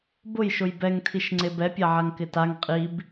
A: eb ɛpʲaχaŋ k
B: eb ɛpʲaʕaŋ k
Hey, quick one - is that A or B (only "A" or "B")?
B